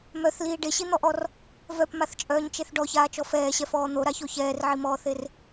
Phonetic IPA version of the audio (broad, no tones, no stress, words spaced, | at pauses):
mœθliː ɖeɕin̪ɔʔɔr | vœpmaθt͡ʃʼœːɲt͡ʃeθ ɖɔçaːt͡ʃɔ fɛːɕɛfɔː n̪oɾaço çɛːrʕimɔːθer